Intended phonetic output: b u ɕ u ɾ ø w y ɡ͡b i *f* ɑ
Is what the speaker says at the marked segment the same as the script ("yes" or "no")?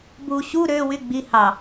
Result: no